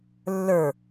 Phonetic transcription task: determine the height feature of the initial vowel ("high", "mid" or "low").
mid